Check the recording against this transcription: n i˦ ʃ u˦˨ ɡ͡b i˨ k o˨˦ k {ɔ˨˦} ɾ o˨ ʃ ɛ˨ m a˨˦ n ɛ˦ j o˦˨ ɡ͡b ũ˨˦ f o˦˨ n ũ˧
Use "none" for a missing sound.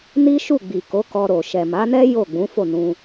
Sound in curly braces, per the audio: ɔ˧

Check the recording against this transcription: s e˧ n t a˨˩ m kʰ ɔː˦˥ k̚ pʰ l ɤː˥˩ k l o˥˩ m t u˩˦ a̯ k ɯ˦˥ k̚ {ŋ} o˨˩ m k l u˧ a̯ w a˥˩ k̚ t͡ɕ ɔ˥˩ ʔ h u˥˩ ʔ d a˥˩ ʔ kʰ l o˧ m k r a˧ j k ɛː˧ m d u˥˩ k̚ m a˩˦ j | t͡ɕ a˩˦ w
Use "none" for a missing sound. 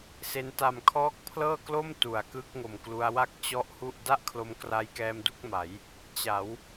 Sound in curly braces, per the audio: ŋ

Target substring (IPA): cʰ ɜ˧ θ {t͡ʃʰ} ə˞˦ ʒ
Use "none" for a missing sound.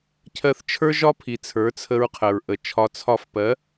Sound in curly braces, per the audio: t͡ʃʰ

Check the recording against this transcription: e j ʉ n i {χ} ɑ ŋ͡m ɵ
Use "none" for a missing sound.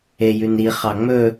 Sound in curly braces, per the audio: χ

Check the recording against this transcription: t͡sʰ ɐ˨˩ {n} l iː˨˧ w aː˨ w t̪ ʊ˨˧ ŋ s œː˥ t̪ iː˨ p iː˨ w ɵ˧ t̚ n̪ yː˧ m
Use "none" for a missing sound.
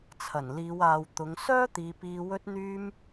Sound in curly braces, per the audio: n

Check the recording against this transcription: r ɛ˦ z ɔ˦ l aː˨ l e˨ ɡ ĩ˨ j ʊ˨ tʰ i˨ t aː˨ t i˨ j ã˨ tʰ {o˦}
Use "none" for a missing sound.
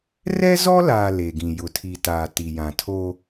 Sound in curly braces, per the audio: o˦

